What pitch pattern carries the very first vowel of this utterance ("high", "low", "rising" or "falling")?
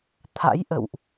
rising